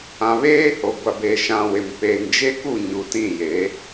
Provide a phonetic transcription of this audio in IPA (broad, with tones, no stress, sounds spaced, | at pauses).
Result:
ã˨ β eː˦ h o˨ ɡʷ a˨ b e˨ ʃ ã˨ w ɪ˨ m p e˨ ŋ d͡ʒ e˦ k u˦˨ ɲ u˨ t ĩ˦˨ j e˨˦